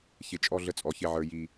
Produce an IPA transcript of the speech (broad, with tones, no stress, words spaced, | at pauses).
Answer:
çɪ˨t͡ʃʼɔ˦ ɮə˦t͡sʼɔ˨çɪ˦ʕə˞˦ ji˦